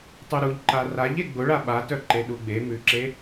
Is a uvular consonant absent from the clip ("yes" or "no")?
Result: yes